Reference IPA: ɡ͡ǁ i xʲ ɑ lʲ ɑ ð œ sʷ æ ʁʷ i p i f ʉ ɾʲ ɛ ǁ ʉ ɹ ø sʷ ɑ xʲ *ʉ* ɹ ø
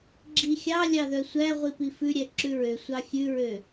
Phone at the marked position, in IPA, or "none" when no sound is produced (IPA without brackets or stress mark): ʉ